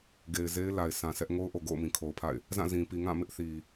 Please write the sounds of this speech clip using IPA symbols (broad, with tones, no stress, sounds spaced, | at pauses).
ɡ e˨ ɪ̯ z e˦ ɪ̯ l a˨ ɪ̯ sʰ ã˨ sʰ ɛ˦ ʔ ŋ o˦ ʊ̯ ʔ o˨ ɡ o̰˦˨ ʊ̯ m ĩ˨ kʰ o˨ ʊ̯ pʰ a̰˦˨ ɪ̯ | z ã˦˨ z ĩ˨ p i˨ ŋ ã˦˨ m ɪ˦ ʔ θ i˨